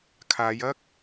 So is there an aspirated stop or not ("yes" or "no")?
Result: yes